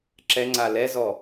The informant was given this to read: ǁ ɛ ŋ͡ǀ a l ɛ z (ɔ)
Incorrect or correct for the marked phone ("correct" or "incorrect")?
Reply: correct